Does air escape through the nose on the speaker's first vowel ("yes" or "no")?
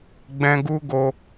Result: yes